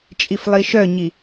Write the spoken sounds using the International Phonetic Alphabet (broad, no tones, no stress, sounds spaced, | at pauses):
t͡ʃʼ i f lˠ i ʃ œ ɲ i